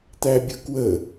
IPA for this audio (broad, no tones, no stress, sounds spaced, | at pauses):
t̪ æ bʲ ʊ k w ə